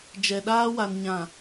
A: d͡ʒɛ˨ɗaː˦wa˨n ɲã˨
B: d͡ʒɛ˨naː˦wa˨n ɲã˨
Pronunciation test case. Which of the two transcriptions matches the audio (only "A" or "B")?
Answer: A